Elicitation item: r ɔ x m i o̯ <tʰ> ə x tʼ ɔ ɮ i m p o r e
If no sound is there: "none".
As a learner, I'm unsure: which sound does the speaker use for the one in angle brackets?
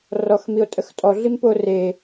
tʼ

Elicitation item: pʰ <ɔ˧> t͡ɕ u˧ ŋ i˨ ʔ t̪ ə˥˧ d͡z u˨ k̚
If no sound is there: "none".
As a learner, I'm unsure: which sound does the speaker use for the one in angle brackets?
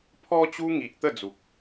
ɔ˧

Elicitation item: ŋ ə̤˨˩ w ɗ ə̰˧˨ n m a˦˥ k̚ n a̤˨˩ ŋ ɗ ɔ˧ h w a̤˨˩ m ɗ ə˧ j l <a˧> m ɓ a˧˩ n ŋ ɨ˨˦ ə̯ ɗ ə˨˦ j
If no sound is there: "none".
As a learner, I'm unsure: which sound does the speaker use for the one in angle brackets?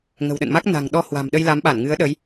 a˨˦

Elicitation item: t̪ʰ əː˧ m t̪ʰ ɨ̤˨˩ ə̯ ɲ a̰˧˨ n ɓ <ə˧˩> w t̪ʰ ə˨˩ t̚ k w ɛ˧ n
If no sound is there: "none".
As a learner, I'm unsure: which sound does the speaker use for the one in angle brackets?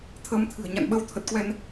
ə˧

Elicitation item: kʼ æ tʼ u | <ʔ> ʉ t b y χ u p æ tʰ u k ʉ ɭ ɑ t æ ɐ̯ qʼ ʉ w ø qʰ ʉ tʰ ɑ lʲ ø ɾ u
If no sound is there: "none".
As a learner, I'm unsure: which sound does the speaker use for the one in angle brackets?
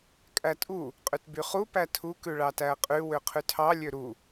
qʼ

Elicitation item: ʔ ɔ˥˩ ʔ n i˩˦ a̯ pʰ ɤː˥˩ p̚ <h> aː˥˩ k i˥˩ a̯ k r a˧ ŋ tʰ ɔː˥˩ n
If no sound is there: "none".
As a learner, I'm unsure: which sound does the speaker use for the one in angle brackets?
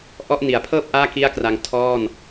ʔ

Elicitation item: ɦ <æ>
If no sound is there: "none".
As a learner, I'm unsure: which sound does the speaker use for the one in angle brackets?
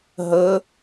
ə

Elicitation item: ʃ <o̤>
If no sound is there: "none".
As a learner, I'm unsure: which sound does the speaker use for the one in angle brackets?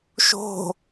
o̤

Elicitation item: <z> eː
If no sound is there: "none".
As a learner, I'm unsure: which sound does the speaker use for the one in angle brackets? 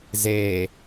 z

